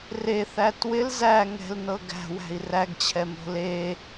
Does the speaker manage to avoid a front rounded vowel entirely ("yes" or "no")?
yes